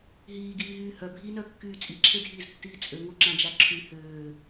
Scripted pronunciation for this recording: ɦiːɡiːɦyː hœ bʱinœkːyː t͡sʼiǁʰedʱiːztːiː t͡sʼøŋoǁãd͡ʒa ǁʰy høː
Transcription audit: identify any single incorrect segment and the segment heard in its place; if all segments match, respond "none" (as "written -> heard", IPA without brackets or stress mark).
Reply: none